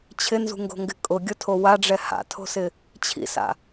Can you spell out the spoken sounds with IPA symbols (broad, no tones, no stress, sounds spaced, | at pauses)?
t͡ɕʰ ɪ n z ṳ ŋ ɡ o̤ ŋ ɡ ɪ kʼ ʊ ɡʲ ʊ tʰ o w a ɖ͡ʐ ɛ h a̰ tʰ o̤ s ɪ | t͡ɕʰ ḭ s a̰